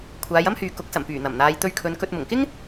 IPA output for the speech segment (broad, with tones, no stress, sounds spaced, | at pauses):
kʷʰ aː˨˧ j ɐ˥ m h yː˨ k ʊ˨˥ k̚ s ɐ˨˩ m p yː˨˩ n̪ ɐ˨˩ m n̪ aː˨˧ j t̪ ɵ˧ ɥ kʰ ɵ˨˧ n k ɵ˧ t̚ m ʊ˨˩ ŋ k ɪ˥ ŋ